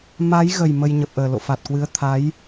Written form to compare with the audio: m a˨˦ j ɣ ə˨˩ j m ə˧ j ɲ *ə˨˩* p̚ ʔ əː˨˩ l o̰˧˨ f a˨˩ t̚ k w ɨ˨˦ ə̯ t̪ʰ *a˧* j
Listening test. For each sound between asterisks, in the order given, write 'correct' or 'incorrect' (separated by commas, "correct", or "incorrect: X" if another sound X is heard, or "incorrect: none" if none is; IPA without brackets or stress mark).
correct, incorrect: a˨˦